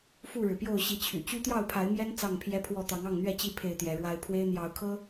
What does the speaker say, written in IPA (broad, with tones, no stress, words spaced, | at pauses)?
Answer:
fu˥˨ɻɻ̩˩pjo˥˨ʊ̯ ɕi˨˦t͡ɕʰy̰˨˩ t͡ɕy˦t̪jɑ˥˨ʊ̯pʰa˨˦ɪ̯mjɛ˦n t͡sɑ˥˨ŋpʰjɛ˦pʰwɔ˥˨ t̪ɑ˨˦ŋɑ˥˨ŋn̪ɥɛ˥˨t͡ɕi˥˨ pʰe˥˨ɪ̯t̪jɛ˨˦ɻwa˦ɪ̯ pʰwe˦ɪ̯n̪jɑ˨˦ʊ̯kʰɤ˦